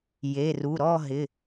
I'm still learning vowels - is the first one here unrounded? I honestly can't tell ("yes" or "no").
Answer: yes